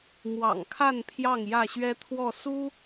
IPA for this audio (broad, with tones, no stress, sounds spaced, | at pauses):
m w ɑ̰˨˩ ŋ kʰ a˥˨ n pʰ j ɑ˥˨ ŋ j ä˥˨ ɕ ɥ ɛ˦ t̪ʰ w ɔ˥˨ s u˦